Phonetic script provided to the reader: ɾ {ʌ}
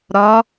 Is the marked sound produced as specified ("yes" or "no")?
no